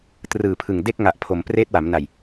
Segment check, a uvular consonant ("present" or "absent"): absent